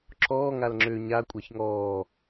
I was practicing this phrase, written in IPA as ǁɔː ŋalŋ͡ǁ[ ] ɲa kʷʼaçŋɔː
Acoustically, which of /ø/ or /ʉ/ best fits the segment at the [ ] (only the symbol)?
ø